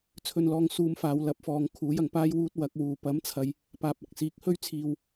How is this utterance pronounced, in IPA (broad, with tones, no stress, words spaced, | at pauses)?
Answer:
t͡sʰɵ˧nlɔː˧ŋ suː˧mfaː˨˧wlɐ˨˥p̚fɔː˨ŋ kʰuː˨˥jɐ˨˩ŋpaː˥jwuː˥t̚ wɐ˨˥k̚wuː˨ pɐ˨˥mt͡sʰɐ˨j | paː˨p̚ɐ˨˥k̚siː˨˥k̚ hɵ˥ɥt͡sʰiː˨w